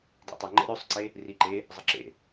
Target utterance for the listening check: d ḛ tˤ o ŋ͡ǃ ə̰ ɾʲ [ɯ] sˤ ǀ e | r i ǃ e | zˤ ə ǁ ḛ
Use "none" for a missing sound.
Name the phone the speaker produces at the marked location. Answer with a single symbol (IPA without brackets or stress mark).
u